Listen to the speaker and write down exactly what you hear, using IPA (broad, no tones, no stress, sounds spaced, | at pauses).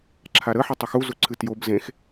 ǁʰ a ɾ ə ħ ɘ tˤ ɘ x u z u ǀʰ ɨ t j o b z ẽ x